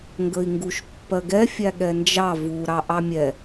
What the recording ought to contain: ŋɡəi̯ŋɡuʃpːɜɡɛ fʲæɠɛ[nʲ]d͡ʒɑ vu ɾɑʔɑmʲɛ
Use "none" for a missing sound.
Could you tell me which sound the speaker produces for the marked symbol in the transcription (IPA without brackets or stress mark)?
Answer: n